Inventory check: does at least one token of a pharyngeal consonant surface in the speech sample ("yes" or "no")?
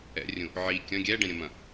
yes